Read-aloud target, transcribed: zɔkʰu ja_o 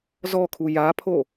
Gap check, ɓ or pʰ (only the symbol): pʰ